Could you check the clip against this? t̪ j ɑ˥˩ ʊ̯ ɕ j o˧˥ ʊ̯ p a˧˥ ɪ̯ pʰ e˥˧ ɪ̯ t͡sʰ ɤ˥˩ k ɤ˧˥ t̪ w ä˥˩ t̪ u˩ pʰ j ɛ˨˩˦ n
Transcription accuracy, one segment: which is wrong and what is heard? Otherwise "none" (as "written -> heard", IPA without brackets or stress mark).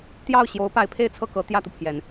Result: w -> j